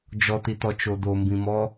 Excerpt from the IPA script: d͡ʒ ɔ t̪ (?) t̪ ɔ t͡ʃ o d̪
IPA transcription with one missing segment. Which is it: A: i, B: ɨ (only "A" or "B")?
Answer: A